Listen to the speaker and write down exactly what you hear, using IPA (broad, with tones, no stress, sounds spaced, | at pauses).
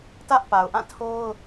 t ä˦ ʔ p a˨ ʊ̯ ʔ ã˦˨ tʰ o˦ ʊ̯